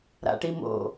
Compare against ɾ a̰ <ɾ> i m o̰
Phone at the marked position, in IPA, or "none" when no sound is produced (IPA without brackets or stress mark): ʈ